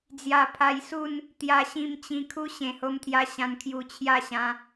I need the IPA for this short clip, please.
d͡z j a˧ pʰ a˧ j s u˥˧ n | t̪ j a˧ ɕ ĩ˧ m t͡ɕ ĩ˧ kʰ u˦ ɕ ẽ˨˩ h o˧ m t̪ʰ j a˧ ɕ ã˧ n kʰ j u˧ t͡ɕʰ j a˥˧ ɕ ã˧

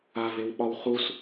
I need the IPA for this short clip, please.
a v e w ɓ ɒ w χ u s

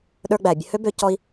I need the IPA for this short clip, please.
ɗ ə˞˧ ɡ͡b æ˩ bʲ ə˧ h ø˥ b ø˧ c ɔ˧ i̯

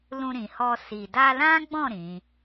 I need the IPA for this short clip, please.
l ũ˧ ɾ ĩ˨ h ɔ˧ s i˨ d a˧ l ã˦ ɡ͡b ɔ̃˦˨ ɾ ĩ˨˦

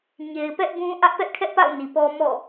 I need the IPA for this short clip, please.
ɲ e˨ ɪ̯ p ɛ˦ ʔ b ũ˦ ʔ ä˦ ʔ p ɛ˦ ʔ kʰ ɛ˦ ʔ p a̰˦˨ ʊ̯ n i˨ p ɔ˦ m ɔ̰˦˨

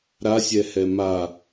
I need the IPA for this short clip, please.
ɾ a sʲ ɛ h ɛ m a

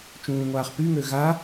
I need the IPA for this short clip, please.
t͡ʃ ũː ŋʷ aː χ p y ŋ ø ɣ a

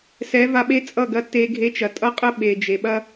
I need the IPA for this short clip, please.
s ɛ˨˦ v a˧ ɓ e˦ t͡sʼ ʌ˦˨ ɡ ɐ˧ tː e˧ ɡʱ e˧ t͡ʃ ɐ˨ tʼ ʌ˦ qʼ ə˦ ɓ e˨ d͡ʒ e˨ ɓ ɐ˦

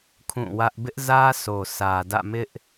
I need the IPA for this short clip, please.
kʰ ũ˦˨ w ä˦ ʔ b ɪ˦ ʔ z ä˦ sʰ o˨ sʰ ä˨ d ä̰˦˨ m ɪ˦ ʔ

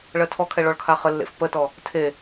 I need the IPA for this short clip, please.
ɭ ɜ tʰ ɔ kʰ ɛ ɭ ɔ ɭ kʰ a χ ə lː ḛ f p ə t ɔ | tʰ e

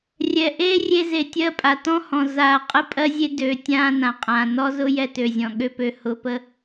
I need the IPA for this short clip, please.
rʲ ɛ˨ ʔ eː˦ rʲ e˧ z e˨ tʲ ɜ˧ pʼ a˨ t ɔ̃˦ h ɔ̃˨ z aː˨ qʼ ə˧ pʼ ɜ˦ zʲ e˦ d ø˨ tʲ ãː˧ n ã˨ qʼ ãː˨ n ɔ˦ z ʊ˦ j ɛ˧ t ø˨ zʲ ɔ̃˨ ɠ ø˦ p ø˧ h ʊ˧ p ə˦

